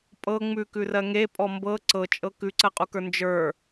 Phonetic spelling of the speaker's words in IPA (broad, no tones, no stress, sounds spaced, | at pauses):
pʼ ɤ ŋ͡m ʉ k ʉ r ɜ ŋ e pʼ ɔ m b ɤ ǀ ɤ t͡ʃʼ ɤ k ʉ ǀ ɜ qʼ u k ə˞ n d͡ʒ ə˞